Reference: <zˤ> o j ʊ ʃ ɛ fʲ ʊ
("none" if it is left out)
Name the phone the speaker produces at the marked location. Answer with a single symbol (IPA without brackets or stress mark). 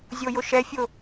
zʲ